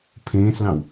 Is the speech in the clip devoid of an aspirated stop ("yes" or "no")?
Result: no